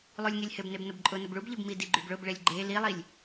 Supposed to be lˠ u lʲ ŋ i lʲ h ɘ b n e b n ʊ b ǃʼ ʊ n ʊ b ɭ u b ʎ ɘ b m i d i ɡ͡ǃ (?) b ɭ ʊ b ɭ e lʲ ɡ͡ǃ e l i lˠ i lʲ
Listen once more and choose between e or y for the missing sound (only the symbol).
y